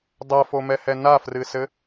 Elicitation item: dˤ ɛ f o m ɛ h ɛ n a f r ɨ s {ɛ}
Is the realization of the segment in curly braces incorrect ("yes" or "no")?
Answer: yes